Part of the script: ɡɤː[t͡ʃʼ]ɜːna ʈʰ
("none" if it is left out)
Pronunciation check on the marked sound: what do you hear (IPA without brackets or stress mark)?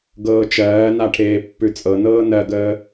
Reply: t͡ʃ